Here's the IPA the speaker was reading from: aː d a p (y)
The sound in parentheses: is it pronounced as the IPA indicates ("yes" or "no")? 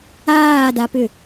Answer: no